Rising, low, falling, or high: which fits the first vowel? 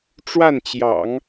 falling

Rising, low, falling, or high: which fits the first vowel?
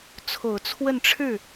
low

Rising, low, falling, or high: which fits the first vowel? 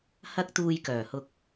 high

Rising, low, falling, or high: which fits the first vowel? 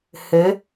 rising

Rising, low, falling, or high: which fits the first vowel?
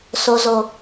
low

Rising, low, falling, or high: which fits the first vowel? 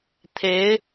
rising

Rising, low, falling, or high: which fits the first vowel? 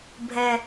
low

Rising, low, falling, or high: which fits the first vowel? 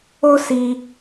high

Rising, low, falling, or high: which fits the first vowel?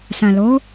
low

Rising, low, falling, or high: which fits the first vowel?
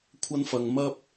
high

